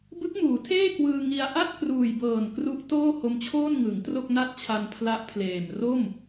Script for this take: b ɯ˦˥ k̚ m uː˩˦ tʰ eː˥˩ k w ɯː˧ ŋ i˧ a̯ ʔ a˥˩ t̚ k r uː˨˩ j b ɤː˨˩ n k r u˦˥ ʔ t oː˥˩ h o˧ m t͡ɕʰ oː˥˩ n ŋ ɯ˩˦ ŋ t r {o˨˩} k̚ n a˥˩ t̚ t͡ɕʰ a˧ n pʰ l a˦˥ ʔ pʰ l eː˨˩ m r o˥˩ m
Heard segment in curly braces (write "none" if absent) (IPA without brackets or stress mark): o˥˩